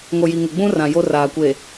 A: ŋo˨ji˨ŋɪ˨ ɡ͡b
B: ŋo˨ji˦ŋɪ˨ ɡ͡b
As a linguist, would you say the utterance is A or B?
A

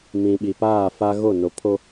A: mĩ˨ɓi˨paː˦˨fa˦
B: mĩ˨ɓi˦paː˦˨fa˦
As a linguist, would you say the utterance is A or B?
A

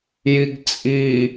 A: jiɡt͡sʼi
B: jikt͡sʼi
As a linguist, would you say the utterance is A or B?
A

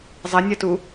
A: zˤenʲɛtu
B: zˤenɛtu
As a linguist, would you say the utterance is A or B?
A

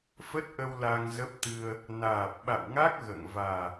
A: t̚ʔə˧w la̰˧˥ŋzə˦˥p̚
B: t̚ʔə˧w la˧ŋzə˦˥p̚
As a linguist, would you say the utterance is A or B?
B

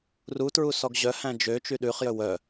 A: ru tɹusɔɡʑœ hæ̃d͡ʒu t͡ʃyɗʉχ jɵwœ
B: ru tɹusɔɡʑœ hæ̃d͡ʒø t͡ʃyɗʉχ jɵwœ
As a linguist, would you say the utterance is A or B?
B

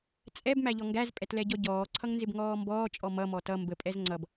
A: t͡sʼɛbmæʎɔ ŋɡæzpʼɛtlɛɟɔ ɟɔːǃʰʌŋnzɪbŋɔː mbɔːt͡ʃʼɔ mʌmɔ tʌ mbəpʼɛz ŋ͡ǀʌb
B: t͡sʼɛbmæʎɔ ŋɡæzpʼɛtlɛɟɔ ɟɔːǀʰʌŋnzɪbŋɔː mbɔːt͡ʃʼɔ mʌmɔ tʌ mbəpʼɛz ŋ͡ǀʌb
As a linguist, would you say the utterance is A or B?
B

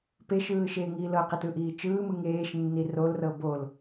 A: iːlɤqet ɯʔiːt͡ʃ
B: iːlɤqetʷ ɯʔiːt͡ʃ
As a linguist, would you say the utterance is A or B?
A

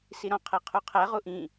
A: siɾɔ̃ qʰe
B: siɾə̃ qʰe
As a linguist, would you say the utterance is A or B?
A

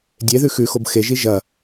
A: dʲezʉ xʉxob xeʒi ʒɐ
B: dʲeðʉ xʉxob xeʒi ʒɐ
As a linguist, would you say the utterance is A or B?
B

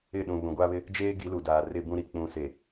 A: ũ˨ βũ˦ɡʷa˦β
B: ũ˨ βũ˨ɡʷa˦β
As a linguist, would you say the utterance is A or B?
B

